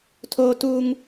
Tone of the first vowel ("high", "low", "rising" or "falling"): high